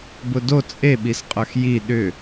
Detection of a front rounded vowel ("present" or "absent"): present